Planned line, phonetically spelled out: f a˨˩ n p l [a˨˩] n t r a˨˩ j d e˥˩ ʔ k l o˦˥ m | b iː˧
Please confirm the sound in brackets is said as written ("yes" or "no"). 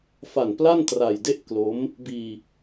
no